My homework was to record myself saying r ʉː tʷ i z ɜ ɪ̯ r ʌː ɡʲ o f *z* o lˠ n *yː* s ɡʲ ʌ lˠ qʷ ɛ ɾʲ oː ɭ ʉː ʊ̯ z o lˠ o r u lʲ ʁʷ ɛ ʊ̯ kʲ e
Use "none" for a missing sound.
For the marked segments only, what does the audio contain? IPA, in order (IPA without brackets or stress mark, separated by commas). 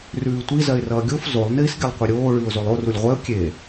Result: z, iː